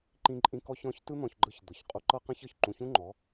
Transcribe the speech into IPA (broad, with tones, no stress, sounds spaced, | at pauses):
ǃ ĩ˧ ǃʼ ĩ˧ k ɔ˦ ç ɔ̃˨˦ ç t ɯ˦ n̪ ɔ̃˧ ç ɡ͡ǃ ɯ˧ ç d̪ ɤ˨ ç qʼ u˧ ǃ ɤ˦ q ã˦ ç ɤ˨ ç ǃ ũ˧ ç ũ˦ ŋ͡ǃ ɔ˨˦